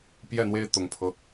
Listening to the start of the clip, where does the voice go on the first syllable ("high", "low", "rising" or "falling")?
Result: falling